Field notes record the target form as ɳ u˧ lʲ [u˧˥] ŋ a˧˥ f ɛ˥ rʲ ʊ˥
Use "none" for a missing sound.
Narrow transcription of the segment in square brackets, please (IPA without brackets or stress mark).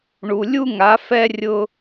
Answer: u˥